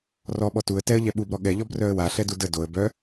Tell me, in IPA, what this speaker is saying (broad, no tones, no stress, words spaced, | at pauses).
rɔɓɔ tuə̯ tɛə̯ʎɛ ɓubɾɔ ɠɛʎɔbrœə̯ waɬɛdu də doə̯ bœ